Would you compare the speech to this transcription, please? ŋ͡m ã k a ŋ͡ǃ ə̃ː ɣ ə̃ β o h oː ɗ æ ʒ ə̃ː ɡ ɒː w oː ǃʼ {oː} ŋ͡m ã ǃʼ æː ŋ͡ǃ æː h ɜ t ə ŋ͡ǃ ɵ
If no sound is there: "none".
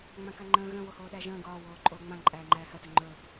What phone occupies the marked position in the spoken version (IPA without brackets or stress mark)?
oː